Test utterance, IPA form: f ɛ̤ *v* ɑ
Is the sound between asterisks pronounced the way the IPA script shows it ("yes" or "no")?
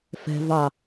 yes